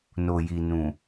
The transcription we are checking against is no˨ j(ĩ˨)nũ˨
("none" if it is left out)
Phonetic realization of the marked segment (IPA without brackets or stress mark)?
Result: i˨